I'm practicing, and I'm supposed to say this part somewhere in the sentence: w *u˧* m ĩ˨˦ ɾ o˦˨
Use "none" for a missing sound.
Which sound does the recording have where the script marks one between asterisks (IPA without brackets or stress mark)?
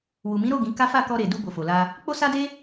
u˨